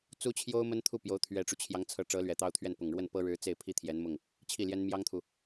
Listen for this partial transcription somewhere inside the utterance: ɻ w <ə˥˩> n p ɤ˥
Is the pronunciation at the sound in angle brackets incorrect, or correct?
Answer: correct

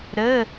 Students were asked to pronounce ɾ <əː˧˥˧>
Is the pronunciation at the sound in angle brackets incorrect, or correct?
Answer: incorrect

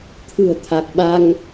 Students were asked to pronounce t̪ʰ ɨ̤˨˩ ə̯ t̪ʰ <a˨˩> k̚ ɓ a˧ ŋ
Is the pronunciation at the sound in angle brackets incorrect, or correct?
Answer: correct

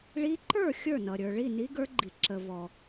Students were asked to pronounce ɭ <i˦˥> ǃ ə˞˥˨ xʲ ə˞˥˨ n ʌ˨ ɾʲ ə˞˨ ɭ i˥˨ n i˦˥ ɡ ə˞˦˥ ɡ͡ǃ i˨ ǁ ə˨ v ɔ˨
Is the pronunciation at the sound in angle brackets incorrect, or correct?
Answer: correct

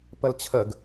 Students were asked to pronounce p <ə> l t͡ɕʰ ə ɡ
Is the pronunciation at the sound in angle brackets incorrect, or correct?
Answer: correct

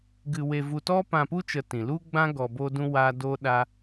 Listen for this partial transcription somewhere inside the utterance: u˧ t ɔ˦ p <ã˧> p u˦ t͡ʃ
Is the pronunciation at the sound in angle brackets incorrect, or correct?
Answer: correct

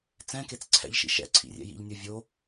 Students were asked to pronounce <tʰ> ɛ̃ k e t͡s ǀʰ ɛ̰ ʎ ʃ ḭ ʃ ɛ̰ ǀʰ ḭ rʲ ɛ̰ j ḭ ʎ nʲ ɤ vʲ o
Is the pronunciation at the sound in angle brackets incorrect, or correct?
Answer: incorrect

